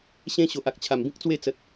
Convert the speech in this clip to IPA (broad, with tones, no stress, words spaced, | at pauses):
ɕẽ˦ɕo˨ʔ a˨k̚t͡ɕʰa˨˩mbĩ˦k̚ t͡swe˥˧t͡sə˨t̚